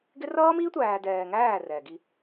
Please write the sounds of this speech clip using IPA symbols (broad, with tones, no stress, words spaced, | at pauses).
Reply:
ɡɪ˦ rʌː˦miː˦tʷæː˨ dɛː˨ŋæː˦˨ rɛː˨ɡi˦